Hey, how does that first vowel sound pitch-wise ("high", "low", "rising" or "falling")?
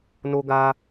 high